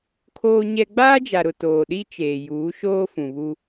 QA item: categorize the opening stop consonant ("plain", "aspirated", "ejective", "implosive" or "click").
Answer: aspirated